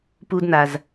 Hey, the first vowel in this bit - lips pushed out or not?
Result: yes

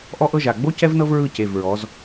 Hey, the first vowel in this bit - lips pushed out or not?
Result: yes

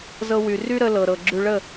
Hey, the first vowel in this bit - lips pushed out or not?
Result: no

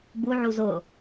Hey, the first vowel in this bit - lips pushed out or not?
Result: yes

